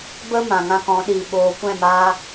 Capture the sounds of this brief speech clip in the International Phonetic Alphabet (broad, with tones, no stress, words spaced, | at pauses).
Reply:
bə˦ mã˨ŋã˧kɔ̃˨˦ɗiː˨ ɓoː˨kʷɛ̃˦˨maː˧